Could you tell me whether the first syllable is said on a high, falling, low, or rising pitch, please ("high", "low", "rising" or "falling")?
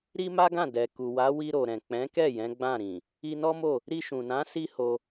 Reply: high